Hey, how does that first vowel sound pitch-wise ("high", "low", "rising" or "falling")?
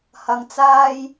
low